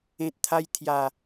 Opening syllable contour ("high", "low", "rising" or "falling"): low